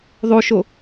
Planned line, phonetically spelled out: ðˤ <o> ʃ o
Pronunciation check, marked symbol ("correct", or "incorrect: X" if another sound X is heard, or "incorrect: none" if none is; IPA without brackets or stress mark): correct